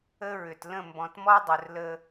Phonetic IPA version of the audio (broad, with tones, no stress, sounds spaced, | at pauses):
ə˦ ɹ ʏ˨ t l ə̃˦˨ m b ɔ̃˨ t m ɔ˦ dˤ ɵ˨ r l ə˦